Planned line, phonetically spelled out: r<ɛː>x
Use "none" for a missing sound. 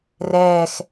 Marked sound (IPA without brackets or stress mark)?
ɛː